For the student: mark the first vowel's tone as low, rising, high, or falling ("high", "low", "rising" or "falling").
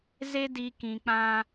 high